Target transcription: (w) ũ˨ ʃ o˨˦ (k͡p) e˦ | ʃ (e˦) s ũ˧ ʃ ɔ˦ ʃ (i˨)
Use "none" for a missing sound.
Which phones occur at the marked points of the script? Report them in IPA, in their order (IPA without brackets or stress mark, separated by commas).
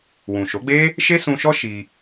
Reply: w, ɡ͡b, e˦, i˧